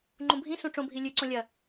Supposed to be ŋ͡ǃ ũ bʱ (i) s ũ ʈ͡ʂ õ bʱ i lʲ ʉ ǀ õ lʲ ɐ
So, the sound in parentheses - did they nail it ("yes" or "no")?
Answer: no